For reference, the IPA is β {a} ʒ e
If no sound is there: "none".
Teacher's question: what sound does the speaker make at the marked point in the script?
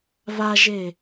a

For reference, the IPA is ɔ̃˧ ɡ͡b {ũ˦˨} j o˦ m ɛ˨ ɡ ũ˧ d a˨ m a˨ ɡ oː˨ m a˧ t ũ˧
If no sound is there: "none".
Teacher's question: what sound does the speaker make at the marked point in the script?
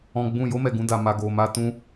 ũ˦˨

